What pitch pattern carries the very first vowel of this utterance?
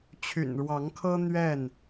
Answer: low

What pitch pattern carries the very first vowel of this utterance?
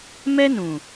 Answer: high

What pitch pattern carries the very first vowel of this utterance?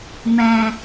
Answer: low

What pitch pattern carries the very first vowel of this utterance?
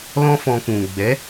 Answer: high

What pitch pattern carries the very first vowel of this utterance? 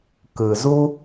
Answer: low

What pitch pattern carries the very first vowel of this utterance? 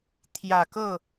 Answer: low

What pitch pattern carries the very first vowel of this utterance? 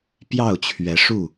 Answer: falling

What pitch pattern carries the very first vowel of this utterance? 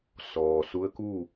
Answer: low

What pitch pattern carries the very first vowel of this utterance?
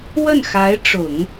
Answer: falling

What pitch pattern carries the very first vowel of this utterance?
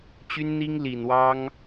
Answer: high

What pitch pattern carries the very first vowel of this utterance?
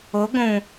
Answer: rising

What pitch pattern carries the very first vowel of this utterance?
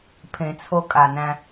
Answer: low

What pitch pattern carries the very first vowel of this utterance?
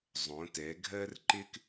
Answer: rising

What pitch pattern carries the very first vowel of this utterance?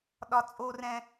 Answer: high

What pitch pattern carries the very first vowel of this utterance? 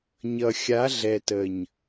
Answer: low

